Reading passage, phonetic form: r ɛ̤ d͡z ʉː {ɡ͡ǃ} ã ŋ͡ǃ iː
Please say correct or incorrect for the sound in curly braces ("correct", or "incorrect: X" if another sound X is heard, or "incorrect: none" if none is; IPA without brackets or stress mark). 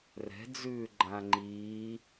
correct